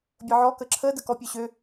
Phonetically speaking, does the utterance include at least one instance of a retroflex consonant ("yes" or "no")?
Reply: no